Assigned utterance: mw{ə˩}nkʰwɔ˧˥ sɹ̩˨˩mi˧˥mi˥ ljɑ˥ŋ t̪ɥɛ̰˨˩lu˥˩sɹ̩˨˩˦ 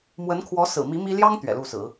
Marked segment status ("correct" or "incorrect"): incorrect